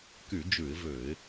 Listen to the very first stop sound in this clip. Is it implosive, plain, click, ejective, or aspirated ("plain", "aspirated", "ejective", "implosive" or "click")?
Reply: plain